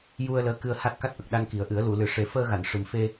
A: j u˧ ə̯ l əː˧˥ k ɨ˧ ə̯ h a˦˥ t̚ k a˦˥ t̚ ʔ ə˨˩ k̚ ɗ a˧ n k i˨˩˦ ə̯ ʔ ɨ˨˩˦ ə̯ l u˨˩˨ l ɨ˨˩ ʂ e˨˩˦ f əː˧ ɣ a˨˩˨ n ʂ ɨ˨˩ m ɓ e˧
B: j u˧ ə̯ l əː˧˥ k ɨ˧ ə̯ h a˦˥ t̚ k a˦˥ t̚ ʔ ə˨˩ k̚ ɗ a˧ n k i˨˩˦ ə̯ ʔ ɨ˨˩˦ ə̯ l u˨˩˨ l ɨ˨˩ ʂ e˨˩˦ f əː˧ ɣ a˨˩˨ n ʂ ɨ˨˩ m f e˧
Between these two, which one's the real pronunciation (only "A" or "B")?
B